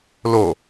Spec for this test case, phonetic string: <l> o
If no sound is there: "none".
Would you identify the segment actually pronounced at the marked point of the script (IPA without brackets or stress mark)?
l